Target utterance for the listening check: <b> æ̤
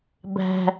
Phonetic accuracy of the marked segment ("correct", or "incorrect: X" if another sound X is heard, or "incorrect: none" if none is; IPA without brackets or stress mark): correct